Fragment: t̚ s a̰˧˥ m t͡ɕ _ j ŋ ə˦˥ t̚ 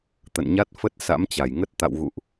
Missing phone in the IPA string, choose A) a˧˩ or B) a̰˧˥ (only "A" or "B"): A